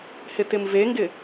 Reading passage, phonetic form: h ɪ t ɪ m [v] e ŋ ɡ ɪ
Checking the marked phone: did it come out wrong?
no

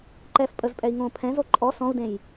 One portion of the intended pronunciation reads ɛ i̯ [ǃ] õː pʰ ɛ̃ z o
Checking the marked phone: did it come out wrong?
yes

